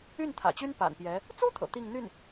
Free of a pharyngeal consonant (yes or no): yes